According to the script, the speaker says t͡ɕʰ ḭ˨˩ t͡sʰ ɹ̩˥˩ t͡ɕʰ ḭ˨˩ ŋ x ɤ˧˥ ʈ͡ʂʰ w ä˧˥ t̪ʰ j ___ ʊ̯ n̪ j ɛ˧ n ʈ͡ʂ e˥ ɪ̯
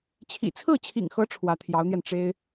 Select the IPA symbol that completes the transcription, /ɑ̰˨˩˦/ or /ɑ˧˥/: ɑ˧˥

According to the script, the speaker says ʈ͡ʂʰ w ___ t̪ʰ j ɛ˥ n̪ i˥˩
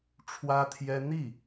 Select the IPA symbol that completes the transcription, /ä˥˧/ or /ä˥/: ä˥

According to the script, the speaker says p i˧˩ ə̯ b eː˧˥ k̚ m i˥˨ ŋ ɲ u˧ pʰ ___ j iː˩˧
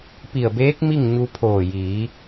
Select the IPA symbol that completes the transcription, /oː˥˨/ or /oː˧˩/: oː˧˩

